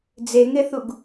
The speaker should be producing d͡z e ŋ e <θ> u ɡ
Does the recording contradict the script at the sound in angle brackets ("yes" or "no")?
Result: no